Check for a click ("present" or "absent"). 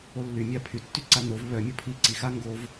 present